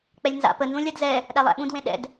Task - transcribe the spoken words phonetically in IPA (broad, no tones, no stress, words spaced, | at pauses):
k͡pɛlʲnza̰pə nzũlʲadzɛ | ɗælˠæ̰ɓũd wẽɗɛ̰d